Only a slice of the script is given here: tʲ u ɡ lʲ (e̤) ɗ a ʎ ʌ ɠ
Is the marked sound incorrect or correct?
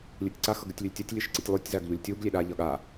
incorrect